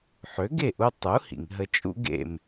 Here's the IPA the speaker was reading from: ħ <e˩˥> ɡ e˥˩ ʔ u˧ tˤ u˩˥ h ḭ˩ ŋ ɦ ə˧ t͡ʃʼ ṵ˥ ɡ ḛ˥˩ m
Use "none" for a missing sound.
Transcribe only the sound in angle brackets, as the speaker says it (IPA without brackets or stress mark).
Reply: ø˩˥